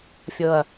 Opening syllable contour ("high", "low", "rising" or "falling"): low